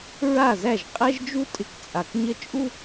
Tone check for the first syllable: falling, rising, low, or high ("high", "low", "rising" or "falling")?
falling